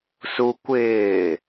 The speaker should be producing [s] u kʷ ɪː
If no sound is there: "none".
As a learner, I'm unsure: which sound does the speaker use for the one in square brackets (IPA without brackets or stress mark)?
s